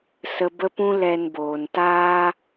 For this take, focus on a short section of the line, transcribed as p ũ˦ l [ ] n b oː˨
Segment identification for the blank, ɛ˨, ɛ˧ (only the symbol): ɛ˧